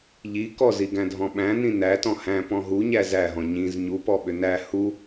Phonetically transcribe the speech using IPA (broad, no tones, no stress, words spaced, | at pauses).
ʎi kɔziɡæ̃ dʱɔ̃ɓæ̃ nĩnæ tɔ̃hæ̃ pɔ̃ɦu ɲæzæɦɔ̃ ɲĩz ɲupɔ ɓʏnæ hu